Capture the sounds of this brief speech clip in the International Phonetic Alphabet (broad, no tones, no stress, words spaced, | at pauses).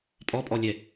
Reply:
pʼɔpʼɔlʲɛ